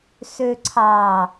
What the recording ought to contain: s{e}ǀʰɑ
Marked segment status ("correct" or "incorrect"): incorrect